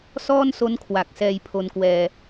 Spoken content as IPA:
s ɔː˥˩ n s o˦˥ n kʰ w a˨˩ k̚ s ɛː˧ j pʰ o˧ n k w ɛː˧

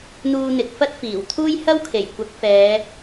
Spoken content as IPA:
n̪ uː˧ n̪ ɪ˨ k̚ f ɐ˥ t̚ f iː˨˩ w t̪ʰ uː˥ j h ɐ˥ w kʰ e˨˩ j kʷ ɐ˨˥ k̚ f ɛː˨˧

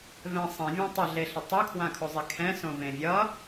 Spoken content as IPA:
v ɛ̃ sˤ ɛ̃ vʲ ã tˤ ʌ ɮ e ɬ ʌ tˤ o kʰ w ã kʰ o zˤ e kʰ ɛ̃ s õ v ẽ vʲ ʌ

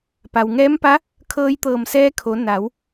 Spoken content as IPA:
p a˩ w ŋ ɛː˧˥ m p a˧˥ | kʰ ɤː˧ j t̪ ɤː˧˩ m s ɛː˧ kʰ o˩˧ n a˩˧ w

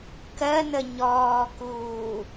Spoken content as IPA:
k ɜ n ə ɲ ɔː k uː

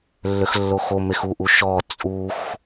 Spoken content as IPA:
lː ø x lː o x o m e x u ʔ u ʃ ɔ t͡sʼ u x

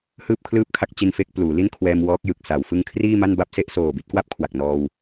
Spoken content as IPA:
h ɯː˥˩ p̚ kʰ l ɯː˥˩ p̚ kʰ a˥˩ k̚ t͡ɕ i˧ n f e˦˥ k̚ p l uː˩˦ l i˥˩ n kʰ w ɛː˧ m w ɔː˦˥ k̚ j ɯ˨˩ k̚ s a˩˦ w f ɯ˧ ŋ kʰ r iː˥˩ m a˥˩ n b a˥˩ p̚ s e˥˩ ʔ s oː˨˩ b i˦˥ t̚ k w a˥˩ p̚ kʰ w a˨˩ k̚ n ɔː˧ w

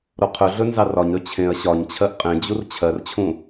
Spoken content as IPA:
ɾ o qʰ ɵ ɮ ɵ n z ɑ r ɒ ɲ ɾ ɵ t͡ɕʰ ẽ ɐ̯ ɕ ɒ ɲ t͡ɕʰ ɜ ʔ qʼ ẽ d͡ʑ u r t͡ɕʰ ɜ r t͡ɕʰ ũ

